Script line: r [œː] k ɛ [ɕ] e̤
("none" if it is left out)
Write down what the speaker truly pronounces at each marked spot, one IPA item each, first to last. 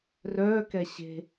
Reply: œː, ɕ

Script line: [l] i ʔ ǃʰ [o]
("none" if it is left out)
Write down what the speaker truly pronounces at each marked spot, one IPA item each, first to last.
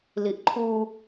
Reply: l, u

